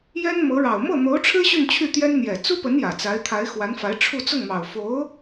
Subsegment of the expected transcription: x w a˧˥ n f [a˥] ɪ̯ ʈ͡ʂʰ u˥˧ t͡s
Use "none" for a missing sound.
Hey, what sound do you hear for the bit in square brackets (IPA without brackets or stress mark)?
a˧˥